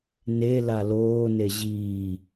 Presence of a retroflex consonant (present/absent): absent